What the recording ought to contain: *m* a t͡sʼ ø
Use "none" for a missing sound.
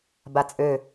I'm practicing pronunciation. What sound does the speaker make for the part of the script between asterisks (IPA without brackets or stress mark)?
b